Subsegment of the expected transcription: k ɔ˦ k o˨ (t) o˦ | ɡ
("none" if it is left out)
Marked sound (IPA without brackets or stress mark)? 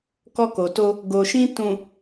t